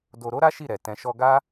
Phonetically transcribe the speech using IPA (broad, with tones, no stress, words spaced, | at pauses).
do˧ɾo˦ɾa˦ ʃi˦˨ɾɛ˨ tɛ̃˨ʃɔ˧ɡa˦